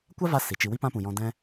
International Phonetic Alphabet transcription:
kʷ a˦ v a˧ s i˨ t͡ʃ i˧ w i˦ p ã˦ p ũ˨ j ɔ̃˧ d ɛ̃˧

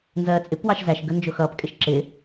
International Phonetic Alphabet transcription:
n z ɜː t͡sʼ ɪ p w ɑ ʃ z æ ʃ ɡ ə n d͡ʒ ʊ x ʌː p kʼ ɪ ʃ ǁ ɪ

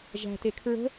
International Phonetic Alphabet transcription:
ʒ æ̤ t e kʰ ɹ ə̤

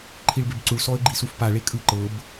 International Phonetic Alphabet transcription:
ǃʰ i ɭ b e b ǀ u ɭ s ɔ ə̯ ɡ͡ǃ i s u f p a ɭ e kʼ ɯ ǃ ɤ b

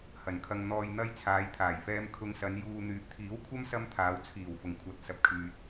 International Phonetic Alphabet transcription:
h ɐ˨˩ n kʰ ɐ˧ ŋ n̪ ɔː˧ j n̪ ɐ˥ j t͡sʰ aː˨˧ j t̪ʰ aː˨˩ j f ɛː˧ m kʰ ʊ˧ ŋ s ɐ˨˧ n j uː˨ n̪ yː˨˥ p̚ t̪ʰ iː˨˥ w kʷʰ ɐ˥ m s ɐ˥ m t̪ʰ aː˨˧ w t͡sʰ iː˨˩ w f ʊ˨˩ ŋ kʷʰ ɐ˨˥ t̚ s ɐ˨ p̚ kʰ yː˨ t̚

